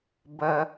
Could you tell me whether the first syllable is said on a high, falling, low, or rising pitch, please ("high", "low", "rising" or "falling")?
low